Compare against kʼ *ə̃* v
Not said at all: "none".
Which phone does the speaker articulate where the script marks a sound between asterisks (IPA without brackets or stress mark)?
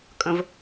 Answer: ə̃